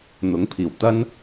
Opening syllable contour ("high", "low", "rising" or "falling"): rising